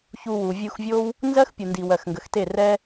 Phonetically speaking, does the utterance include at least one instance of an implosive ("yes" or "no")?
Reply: no